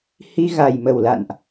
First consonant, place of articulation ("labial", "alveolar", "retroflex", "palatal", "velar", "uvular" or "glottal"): glottal